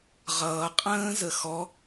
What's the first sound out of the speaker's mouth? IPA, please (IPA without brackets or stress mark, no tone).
ʁ